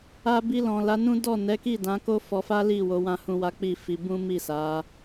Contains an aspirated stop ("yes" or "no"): no